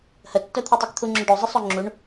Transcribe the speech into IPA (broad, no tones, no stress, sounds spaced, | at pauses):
h ə tː œ t̪ʰ œ tˤ y k t̪ʰ u ŋ͡ǁ œ ɖ o zˤ ə sˤ o ŋ͡ǁ u ɳ